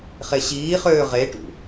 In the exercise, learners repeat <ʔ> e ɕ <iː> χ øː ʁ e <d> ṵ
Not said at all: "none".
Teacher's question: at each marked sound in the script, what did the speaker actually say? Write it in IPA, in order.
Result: χ, iː, ʈ

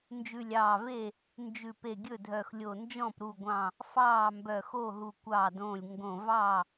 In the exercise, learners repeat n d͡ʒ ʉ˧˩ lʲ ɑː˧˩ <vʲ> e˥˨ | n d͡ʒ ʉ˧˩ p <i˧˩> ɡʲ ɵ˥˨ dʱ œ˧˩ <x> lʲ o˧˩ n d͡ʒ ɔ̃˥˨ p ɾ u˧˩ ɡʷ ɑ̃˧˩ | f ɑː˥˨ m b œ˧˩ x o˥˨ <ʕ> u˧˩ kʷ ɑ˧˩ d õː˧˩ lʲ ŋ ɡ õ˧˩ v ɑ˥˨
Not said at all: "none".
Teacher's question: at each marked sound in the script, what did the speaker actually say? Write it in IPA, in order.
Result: v, e˧˩, x, ɦ

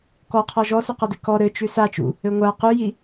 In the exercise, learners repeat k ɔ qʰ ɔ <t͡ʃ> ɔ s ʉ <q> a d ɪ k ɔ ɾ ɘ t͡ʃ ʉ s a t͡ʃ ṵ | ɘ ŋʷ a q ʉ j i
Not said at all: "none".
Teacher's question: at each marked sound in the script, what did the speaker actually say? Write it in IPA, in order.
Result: ʒ, q

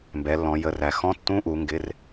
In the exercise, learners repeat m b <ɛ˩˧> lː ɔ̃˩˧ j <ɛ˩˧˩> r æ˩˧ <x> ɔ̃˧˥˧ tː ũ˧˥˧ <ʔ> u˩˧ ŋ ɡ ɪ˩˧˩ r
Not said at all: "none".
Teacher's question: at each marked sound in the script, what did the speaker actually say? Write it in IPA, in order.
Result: ɛ˩˧, ə˩˧˩, x, ʔ

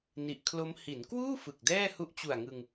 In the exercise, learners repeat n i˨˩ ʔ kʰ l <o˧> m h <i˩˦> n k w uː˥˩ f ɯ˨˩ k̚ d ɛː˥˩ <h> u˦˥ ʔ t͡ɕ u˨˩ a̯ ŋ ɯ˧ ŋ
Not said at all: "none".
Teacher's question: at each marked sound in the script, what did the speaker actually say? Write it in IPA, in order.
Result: o˦˥, i˩˦, h

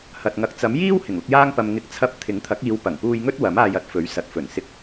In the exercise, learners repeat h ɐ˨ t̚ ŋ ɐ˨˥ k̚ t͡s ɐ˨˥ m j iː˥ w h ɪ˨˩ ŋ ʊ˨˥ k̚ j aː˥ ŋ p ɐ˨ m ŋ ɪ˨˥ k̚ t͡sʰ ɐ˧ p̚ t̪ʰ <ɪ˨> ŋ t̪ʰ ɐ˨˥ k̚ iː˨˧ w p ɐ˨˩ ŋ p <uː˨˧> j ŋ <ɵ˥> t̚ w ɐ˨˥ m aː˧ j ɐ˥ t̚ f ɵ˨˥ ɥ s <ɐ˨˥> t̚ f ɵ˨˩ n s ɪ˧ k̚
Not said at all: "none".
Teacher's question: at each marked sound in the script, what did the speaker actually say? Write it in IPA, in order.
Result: ɪ˨˥, uː˧, ɵ˥, ɐ˨˥

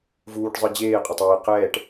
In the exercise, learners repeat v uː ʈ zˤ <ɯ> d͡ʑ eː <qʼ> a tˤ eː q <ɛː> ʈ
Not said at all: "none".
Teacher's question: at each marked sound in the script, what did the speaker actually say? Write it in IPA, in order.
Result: ɯ, qʼ, ɛː

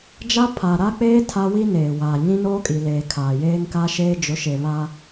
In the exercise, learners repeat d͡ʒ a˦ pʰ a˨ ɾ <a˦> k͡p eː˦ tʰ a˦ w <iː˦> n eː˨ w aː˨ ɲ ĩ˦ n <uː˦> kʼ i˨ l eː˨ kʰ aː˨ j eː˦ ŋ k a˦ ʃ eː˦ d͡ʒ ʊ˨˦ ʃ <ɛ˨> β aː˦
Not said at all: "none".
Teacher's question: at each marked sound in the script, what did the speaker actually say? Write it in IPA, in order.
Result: a˦, i˦, oː˦, e˨

